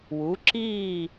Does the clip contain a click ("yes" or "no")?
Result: yes